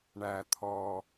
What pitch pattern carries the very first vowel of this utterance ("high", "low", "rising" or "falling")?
low